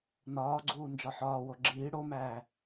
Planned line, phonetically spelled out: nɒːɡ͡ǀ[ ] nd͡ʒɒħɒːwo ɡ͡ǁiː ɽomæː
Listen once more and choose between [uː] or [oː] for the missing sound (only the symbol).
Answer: uː